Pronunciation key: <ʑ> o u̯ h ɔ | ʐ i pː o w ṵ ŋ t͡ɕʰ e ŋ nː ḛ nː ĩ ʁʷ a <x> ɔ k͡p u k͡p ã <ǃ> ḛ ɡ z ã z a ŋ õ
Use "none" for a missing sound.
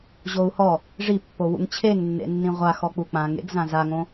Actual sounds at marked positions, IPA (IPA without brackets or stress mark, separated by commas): ʑ, x, ŋ